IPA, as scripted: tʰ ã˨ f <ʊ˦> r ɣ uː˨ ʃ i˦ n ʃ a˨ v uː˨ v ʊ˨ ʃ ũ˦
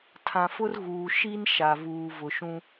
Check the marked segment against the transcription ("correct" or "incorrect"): correct